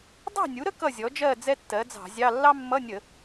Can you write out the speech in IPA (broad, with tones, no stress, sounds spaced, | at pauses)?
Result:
dˤ ɑ̤˥˨ nʲ u˩˥ ɾ ə˥ k ʌ˥˨ zʲ ɔ˩˥ d͡ʒ ɜ˥˨ d͡z ɛ˥ tː ɜ˩˥ d͡z ɑ̤˧˩˧ zʲ ɑ˧˥˧ lː ɑ˥ mː ʌ˧˥˧ nʲ ə˧˩˧